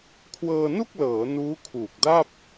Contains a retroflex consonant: no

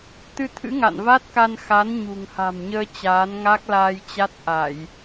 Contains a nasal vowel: no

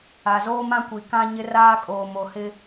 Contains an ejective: yes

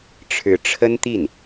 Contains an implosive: no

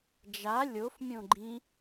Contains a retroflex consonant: no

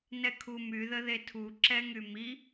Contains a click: yes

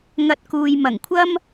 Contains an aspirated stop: yes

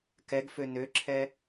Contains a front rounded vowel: yes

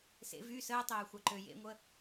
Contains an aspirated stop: no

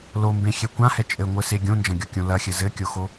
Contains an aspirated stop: no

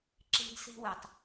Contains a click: yes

